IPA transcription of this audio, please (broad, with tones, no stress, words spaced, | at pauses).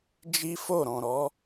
d͡ʒi˦fo˦˨ ɾɔ̃˨ɾɔ˨˦